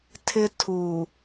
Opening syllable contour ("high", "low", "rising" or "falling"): high